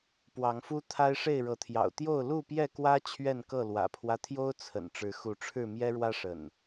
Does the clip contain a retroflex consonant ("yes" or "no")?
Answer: yes